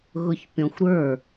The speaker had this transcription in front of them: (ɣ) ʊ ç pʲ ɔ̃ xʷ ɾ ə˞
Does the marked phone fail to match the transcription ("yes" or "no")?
no